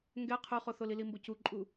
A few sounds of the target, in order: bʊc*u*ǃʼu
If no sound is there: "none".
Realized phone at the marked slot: u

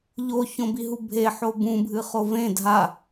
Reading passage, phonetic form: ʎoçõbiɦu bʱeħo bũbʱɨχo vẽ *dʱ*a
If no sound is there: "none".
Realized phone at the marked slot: dʱ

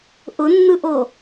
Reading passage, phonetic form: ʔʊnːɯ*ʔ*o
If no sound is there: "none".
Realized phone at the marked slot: ʔ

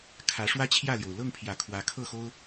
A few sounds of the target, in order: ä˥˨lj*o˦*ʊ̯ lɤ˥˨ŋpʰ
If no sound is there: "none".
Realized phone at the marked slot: o˩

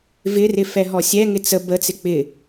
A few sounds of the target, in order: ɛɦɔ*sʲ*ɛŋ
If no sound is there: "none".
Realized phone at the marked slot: sʲ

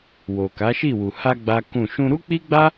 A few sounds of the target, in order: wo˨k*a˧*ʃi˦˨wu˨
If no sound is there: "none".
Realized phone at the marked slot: a˨˦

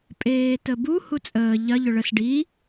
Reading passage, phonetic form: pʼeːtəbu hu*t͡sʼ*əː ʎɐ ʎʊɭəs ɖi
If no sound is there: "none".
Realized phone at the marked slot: t͡sʼ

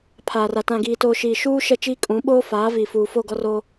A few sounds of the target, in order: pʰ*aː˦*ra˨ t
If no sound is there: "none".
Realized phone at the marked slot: aː˨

